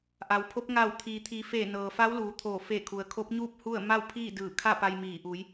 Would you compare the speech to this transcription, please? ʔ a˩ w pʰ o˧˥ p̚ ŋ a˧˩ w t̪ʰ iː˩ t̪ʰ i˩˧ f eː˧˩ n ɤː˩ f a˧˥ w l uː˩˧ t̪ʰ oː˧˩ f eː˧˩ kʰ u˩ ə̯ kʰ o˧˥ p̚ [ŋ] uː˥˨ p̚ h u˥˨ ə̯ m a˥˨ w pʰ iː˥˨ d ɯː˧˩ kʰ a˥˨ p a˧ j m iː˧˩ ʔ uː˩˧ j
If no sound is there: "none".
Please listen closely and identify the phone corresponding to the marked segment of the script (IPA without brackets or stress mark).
ɲ